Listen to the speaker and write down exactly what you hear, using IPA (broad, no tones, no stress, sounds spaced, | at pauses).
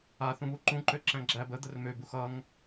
a θ ũ β u ǃ ũ ǃ ø ǁ æ̃ ɡ͡ǁ æ b ə d̪ ə r m ø b u x ʌ ŋ